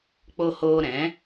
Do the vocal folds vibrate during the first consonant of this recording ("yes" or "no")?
no